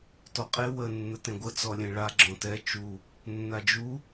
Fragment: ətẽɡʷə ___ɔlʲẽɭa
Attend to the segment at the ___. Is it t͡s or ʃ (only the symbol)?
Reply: t͡s